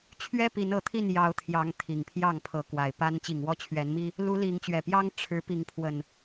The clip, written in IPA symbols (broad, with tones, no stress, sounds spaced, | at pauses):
t͡ɕʰ ɥ ɛ˦ p i˨˦ n ɤ˨˦ t̪ʰ i˥˨ n j ɑ˨˦ ʊ̯ t̪ʰ j ɑ˨˦ ŋ t̪ʰ i˨˩ ŋ pʰ j ɑ˥˨ ŋ pʰ ɤ˨˦ k w a˨˩ ɪ̯ p a˦ n t͡ɕ i˨˩ ŋ w ɔ˦ t͡ɕʰ ɥ ɛ˨˦ n m i˦ | l u˨˦ l i˨˦ ŋ t͡ɕ ɥ ɛ˨˩ p j ɑ˦ ŋ ʈ͡ʂʰ ɻ̩˨˦ p i˨˦ ŋ pʰ w ə˨˩ n